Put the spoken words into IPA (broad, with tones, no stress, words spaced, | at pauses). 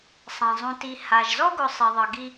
sˤã˩zˤũ˨ti˨ ha˩ʒzɔ˥ɡʊ˨ sˤi˩ðˤɤ˩ɡi˦